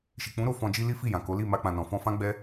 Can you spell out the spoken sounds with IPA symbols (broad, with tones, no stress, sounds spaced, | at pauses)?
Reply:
ʃ i˨ k͡p ũ˨˦ ɾ o˧ f ɔ̃˨ d͡ʒ i˧ l i˦ f i˦˨ j ã˨ k o˨˦ l i˦˨ m a˧ k͡p ã˨ n ɔ̃˨ f ɔ̃˧ f ã˦ ɡ͡b ɛ˦